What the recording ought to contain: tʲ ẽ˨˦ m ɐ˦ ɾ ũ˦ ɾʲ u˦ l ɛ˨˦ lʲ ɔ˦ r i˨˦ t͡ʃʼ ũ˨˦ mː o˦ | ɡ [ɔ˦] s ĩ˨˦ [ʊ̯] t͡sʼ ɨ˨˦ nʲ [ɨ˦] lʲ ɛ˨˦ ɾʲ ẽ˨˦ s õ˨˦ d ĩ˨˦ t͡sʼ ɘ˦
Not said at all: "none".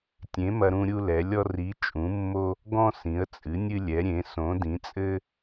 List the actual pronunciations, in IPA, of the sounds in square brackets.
ɔ̃˦, ə̯, ɨ˦

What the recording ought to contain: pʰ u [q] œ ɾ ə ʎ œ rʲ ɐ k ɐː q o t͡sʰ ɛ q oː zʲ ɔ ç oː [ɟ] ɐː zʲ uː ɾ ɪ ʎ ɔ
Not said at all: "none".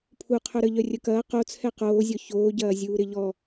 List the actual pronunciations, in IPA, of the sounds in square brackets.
qʰ, ɟ

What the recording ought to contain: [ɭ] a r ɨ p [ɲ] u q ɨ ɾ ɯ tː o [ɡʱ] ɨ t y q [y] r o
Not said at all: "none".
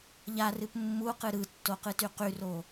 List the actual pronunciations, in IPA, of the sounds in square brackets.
ʎ, mː, q, y

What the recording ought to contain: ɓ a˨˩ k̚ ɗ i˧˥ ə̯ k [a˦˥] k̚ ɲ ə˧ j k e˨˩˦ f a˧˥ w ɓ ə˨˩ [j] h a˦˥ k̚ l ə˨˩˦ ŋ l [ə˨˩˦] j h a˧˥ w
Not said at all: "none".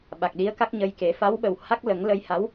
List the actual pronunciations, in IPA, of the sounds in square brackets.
a˦˥, w, ə˧

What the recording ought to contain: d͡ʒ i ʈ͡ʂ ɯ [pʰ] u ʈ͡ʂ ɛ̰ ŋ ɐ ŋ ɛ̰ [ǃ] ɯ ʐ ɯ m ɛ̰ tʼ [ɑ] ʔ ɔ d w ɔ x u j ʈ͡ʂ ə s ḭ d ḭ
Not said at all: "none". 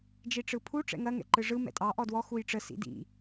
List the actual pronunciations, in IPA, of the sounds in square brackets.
pʰ, ǃ, ɑ

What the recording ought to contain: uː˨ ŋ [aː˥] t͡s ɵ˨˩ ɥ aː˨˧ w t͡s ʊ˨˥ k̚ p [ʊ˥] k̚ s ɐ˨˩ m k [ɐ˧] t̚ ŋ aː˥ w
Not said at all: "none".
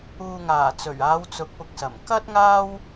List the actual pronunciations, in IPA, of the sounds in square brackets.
aː˨˩, ʊ˨, ɐ˥

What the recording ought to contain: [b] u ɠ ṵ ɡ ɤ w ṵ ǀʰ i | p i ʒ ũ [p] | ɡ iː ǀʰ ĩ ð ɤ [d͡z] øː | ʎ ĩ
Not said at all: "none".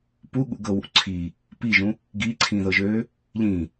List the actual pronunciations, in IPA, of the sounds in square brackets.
p, none, ʒ

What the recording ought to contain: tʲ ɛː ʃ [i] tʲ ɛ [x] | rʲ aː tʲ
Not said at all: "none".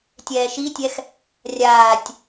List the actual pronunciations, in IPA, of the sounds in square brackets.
i, x

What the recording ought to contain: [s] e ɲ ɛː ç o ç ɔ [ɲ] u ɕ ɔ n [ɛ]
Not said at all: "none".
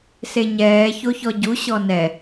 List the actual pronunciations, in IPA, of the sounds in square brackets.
s, ɟ, ɛ

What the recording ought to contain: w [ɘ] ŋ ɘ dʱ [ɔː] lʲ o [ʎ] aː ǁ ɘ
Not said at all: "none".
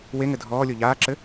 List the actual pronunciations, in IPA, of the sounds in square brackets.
e, ɔː, ʎ

